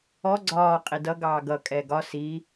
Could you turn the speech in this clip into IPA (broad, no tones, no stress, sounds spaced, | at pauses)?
ɔ ɡ͡ǀ ɒː qʼ i d ʌ ɡ ɑː ɡ ʌ kʼ ɛː ɡ ɒ s iː